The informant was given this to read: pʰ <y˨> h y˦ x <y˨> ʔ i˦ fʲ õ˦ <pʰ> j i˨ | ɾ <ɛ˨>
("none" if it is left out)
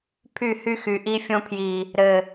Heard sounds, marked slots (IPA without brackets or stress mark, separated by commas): y˦˨, y˨, pʰ, ɘ˨